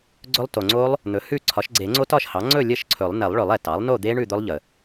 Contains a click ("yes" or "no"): yes